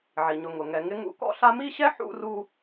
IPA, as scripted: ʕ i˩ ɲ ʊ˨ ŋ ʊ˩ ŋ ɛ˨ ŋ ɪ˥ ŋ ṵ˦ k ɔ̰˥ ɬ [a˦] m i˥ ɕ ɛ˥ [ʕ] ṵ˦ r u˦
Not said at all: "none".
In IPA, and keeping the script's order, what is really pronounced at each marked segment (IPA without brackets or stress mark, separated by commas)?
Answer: a˦, ħ